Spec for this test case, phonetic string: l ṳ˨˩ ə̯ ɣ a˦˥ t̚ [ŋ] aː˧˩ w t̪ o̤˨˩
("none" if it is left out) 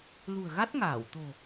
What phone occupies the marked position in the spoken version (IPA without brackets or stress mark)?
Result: ŋ